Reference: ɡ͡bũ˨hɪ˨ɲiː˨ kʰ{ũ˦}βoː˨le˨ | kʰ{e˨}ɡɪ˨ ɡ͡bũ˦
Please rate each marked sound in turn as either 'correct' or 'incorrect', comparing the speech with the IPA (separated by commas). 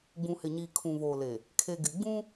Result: incorrect, correct